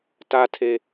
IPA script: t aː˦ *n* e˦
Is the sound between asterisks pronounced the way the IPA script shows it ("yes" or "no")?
no